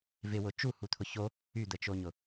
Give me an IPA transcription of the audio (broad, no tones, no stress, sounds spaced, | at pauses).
v ɪ w ʊ t͡ʃ u h u t̪ʰ ʊ ç o | y d̪ ə t͡ʃ o ɲ ʊ